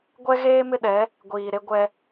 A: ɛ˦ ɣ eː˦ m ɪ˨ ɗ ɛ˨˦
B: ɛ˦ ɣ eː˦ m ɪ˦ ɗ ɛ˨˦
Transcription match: B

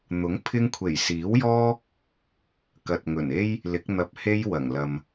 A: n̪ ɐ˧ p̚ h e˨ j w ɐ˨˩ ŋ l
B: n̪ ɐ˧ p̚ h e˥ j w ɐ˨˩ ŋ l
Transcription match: B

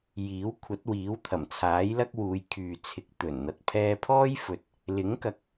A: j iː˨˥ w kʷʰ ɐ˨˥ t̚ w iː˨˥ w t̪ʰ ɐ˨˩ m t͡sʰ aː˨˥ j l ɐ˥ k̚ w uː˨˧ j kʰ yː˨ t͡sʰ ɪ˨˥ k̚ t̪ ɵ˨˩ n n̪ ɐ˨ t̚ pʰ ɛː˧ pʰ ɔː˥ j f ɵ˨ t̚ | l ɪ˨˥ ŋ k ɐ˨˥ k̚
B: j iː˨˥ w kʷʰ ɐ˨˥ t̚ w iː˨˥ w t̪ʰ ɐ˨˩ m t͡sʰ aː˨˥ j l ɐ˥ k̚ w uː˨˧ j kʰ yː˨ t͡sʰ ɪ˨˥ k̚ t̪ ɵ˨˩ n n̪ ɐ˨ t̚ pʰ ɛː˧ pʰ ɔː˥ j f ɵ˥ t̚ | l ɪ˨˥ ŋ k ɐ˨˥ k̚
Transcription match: A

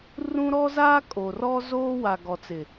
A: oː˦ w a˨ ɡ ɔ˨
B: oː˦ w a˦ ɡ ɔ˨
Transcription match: A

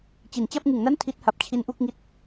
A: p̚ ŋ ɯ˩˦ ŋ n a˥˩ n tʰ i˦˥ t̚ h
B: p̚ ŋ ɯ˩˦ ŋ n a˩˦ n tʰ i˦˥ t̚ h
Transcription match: A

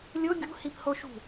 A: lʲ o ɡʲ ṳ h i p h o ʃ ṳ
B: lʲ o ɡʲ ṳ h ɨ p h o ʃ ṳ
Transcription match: A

